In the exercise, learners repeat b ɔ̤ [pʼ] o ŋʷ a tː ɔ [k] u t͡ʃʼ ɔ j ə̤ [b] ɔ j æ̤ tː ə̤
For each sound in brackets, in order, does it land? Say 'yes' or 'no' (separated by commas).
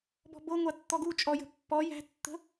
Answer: no, no, no